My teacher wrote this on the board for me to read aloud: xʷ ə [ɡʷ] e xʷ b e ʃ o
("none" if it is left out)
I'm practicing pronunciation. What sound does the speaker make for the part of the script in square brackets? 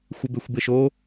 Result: b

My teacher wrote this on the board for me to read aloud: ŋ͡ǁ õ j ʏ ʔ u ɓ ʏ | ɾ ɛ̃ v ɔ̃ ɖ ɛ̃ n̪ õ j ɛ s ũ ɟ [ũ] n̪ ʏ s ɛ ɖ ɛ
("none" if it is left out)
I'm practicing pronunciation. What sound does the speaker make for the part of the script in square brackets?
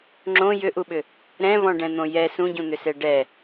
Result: ũ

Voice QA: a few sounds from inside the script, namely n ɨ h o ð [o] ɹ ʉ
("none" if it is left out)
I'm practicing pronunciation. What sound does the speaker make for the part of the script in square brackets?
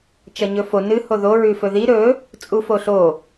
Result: o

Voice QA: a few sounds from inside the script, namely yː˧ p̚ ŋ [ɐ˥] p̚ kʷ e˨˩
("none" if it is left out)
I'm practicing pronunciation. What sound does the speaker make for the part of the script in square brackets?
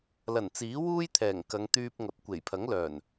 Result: ɐ˨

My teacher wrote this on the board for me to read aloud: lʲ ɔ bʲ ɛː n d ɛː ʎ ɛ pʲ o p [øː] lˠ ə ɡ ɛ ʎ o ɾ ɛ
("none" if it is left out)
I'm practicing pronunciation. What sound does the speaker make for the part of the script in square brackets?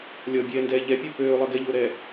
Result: øː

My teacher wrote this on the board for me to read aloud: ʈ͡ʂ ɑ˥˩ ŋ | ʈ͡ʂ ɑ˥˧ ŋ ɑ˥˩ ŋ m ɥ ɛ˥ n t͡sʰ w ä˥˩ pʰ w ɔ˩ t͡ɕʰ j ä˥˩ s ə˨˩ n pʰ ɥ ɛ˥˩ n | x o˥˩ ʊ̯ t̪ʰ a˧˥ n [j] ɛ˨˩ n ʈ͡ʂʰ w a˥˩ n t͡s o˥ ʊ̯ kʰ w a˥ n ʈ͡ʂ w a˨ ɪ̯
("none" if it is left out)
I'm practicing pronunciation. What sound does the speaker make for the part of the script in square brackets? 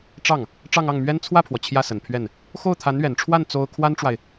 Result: ɥ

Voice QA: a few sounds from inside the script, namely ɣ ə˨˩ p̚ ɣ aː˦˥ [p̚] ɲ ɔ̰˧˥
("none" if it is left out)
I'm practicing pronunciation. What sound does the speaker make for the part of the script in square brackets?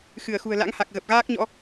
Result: k̚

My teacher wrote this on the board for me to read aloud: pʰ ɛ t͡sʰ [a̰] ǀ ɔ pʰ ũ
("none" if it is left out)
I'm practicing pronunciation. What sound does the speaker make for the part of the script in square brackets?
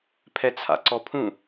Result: a̰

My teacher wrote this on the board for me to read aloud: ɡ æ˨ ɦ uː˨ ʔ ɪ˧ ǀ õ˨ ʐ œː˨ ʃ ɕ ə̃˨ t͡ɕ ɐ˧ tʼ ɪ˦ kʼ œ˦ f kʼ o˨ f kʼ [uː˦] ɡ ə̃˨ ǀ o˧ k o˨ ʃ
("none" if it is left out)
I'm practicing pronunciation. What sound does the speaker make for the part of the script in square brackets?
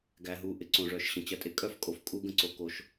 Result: uː˦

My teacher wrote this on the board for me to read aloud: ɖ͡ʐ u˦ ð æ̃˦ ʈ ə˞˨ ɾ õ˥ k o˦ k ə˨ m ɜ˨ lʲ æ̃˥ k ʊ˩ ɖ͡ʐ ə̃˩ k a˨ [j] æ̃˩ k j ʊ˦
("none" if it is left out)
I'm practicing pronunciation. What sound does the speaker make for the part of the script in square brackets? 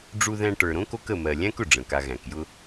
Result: ɣ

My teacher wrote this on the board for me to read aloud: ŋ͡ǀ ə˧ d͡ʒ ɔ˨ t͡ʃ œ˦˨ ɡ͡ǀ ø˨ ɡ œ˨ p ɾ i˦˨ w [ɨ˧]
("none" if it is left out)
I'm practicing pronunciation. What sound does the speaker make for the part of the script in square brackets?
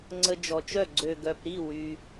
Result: y˧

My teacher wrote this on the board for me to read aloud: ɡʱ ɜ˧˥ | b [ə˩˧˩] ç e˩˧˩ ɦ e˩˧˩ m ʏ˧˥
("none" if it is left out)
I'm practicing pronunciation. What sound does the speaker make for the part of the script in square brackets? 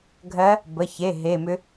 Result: ə˩˧˩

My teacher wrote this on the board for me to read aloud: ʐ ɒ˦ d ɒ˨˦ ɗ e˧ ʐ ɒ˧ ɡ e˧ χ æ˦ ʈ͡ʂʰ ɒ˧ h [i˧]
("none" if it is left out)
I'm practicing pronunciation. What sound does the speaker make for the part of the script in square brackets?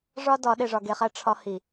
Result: i˨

